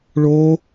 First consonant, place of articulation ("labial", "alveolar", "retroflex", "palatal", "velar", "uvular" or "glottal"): retroflex